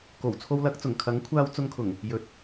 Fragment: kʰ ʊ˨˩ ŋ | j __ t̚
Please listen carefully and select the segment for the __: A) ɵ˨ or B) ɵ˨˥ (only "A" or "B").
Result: B